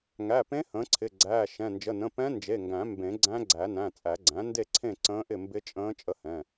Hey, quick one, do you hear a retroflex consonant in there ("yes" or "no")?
no